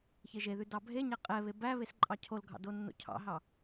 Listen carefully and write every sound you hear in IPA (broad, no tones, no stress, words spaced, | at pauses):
çeʒeðʉ dɑbʱeɲæ qʼɛβe bæ βesǃʼɑcʰolɡʱɑ̰ donːo̰cʰɑ̰ɦɑ